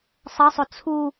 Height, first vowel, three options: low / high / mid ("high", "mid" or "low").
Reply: mid